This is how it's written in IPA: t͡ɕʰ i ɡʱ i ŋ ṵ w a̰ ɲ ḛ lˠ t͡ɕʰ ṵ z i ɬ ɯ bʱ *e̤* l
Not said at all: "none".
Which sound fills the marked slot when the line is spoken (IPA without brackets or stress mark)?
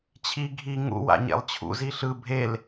e